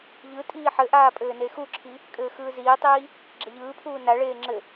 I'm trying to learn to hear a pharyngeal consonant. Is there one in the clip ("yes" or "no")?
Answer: yes